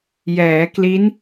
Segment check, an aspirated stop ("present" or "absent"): absent